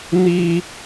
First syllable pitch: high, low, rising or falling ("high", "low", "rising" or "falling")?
high